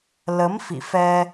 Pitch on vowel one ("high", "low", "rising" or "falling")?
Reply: rising